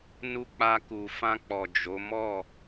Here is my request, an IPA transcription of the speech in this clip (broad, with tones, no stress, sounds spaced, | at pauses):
n u˦ k͡p a˧ k u˨ f ã˧ k͡p ɔ˨ d͡ʒ o˨˦ m ɔ˦˨